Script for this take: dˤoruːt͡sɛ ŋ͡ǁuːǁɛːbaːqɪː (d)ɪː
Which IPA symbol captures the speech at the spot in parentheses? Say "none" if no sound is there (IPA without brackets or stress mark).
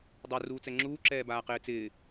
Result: t͡s